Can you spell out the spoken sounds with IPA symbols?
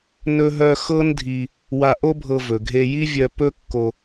n ɵ˧ ɦ œ˧ x ɤ˥ n dʱ i˧ | w a˧ ʔ o˥ bʱ ɤ˧ v ɵ˩ ɡʱ e˧ j i˥ vʲ œ˧ p ɵ˥ kː o˧

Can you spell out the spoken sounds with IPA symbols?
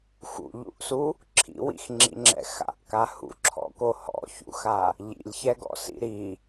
x ṵ ʎ ṵ ʔ s u | ǁʰ ḭ w ḭ x ŋ͡ǁ ḭ ŋ͡ǁ ɛ̰ x a̰ ʔ k a h ṵ ǁʰ ɔ̰ k o h ɔ̰ ç ṵ x a | ʎ ḭ lʲ ç ɛ ɡ ɔ̰ s ḭ ɾ i

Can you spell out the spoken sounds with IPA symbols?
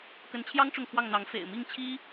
k ə˧˥ n t͡ɕʰ j ɑ˥ ŋ ʈ͡ʂ ʊ˥˧ ŋ kʰ w ɑ˥˩ ŋ n̪ ɑ˧˥ ŋ f ḛ˨˩ ɪ̯ m i˥˩ ŋ t͡ɕʰ i˥

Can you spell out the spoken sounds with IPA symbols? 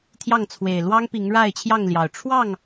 t̪ʰ j ɑ˥˨ ŋ t͡sʰ w e˨˩ ɪ̯ l w ɑ˦ ŋ p i˨˦ ŋ ɻ a˥˨ ɪ̯ t͡ɕʰ j ɑ˥˨ ŋ l j ɑ˨˩ ʊ̯ ʈ͡ʂʰ w ɑ˥˨ ŋ

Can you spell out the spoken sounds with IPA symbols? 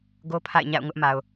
ɡ o˦ pʰ a̰˦˨ ɪ̯ ɲ a̰˦˨ ʊ̯ ŋ ʊ˦ ʔ m a˨ ʊ̯

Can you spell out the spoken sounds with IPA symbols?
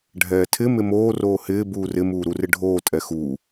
ɖʱ ɛː tʰ ɪ m ɪ m oː r oː h ɪː b uː r ɪ m uː ɾ u r ɪ ɖʱ oː tʼ ɛ x uː

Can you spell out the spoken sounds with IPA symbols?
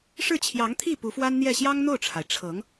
ʂ ɻ̩˥˩ t͡ɕʰ j ɑ˧˥ ŋ t̪ʰ i˥˩ p u˧˥ f w a˥ n n̪ j ɛ˥˩ ɕ j ɑ˥ ŋ n̪ o˥˩ ʊ̯ ʈ͡ʂʰ a˩ ɪ̯ ʈ͡ʂʰ ɤ˧˥ ŋ

